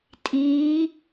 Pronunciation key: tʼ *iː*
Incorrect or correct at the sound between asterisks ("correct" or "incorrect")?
correct